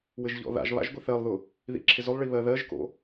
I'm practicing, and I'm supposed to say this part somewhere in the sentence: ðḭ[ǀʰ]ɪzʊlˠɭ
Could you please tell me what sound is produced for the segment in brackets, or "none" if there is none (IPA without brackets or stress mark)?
ǁʰ